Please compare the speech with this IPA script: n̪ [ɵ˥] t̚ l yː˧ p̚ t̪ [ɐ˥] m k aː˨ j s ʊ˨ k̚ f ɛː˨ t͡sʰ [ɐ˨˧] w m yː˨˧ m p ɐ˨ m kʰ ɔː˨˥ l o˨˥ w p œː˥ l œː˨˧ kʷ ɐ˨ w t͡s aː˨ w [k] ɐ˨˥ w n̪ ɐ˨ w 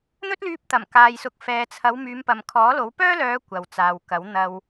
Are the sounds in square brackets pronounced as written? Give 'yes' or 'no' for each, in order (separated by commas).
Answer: yes, no, yes, yes